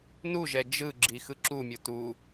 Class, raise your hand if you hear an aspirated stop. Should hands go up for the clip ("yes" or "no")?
no